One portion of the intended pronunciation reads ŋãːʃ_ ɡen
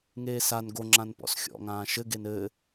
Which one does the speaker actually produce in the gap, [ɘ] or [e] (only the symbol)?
ɘ